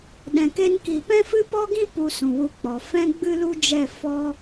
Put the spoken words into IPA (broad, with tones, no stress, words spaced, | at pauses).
ɗɛ̃˨ke˧nki˨ pɛ̃˦fɨ˦pɔ˦ɡĩ˦ pu˧sũ˨wu˧k͡pɔ˨ fɛ̃˦ɡ͡bɨ˦lu˦d͡ʒɛ˦˨ fɔ˦